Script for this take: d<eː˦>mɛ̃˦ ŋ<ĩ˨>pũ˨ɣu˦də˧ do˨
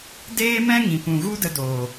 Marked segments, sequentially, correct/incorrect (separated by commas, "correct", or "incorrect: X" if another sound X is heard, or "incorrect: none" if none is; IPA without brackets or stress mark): correct, correct